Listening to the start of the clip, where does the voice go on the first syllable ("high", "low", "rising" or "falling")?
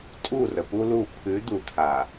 falling